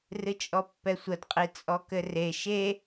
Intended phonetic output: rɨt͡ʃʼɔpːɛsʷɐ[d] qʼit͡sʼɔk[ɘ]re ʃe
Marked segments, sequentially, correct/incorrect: correct, correct

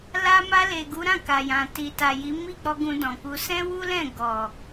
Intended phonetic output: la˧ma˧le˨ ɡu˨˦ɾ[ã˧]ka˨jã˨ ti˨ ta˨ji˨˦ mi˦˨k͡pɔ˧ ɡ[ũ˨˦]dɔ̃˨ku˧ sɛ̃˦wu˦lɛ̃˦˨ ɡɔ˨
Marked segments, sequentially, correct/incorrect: incorrect: ã˦˨, incorrect: ũ˧

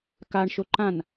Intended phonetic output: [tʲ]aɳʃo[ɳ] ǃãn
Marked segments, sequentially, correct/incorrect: incorrect: k, incorrect: none

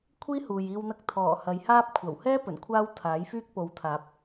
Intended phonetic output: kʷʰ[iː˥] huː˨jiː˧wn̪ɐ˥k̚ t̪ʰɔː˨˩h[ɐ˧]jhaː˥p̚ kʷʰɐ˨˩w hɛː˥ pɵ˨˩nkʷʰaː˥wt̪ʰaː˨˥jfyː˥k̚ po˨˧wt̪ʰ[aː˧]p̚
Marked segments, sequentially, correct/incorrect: correct, incorrect: ɐ˨˧, incorrect: aː˨˥

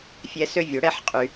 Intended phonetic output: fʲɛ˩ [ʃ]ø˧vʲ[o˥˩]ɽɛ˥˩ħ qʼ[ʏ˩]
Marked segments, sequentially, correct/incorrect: incorrect: s, incorrect: o˩, incorrect: y˩

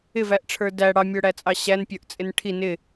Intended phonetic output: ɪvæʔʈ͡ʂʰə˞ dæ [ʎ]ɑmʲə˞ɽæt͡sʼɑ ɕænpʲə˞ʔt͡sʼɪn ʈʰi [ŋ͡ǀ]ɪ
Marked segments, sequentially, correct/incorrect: incorrect: ɽ, incorrect: n

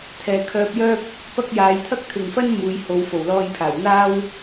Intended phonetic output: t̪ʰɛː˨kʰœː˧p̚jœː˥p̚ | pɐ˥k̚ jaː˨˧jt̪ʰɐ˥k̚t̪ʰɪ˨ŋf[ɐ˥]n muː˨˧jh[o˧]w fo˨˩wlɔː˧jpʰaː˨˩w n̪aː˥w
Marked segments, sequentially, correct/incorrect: correct, incorrect: o˨˧

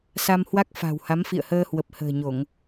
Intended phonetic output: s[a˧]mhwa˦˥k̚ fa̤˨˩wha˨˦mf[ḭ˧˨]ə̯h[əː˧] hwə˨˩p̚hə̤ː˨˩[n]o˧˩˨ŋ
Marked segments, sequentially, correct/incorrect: correct, correct, correct, incorrect: ɲ

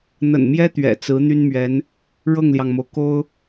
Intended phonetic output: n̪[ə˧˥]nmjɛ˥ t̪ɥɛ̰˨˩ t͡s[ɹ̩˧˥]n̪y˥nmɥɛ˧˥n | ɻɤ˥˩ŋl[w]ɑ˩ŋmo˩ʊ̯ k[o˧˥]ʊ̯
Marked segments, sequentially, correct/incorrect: incorrect: ə̰˨˩, correct, incorrect: j, incorrect: o˥

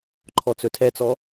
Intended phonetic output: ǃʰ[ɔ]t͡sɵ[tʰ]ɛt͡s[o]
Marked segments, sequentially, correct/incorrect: correct, correct, incorrect: ɔ

